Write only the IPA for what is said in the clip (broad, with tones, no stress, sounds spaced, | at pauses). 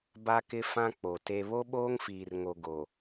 b a˦ k ɪ˦ f ã˦ k͡p o˨ t e˦ β o˦ ɓ oː˦ ŋ f iː˨ r ŋ o˨ ɡ o˨